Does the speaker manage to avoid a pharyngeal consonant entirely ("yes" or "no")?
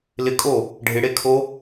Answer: yes